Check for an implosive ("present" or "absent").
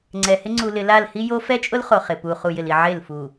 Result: absent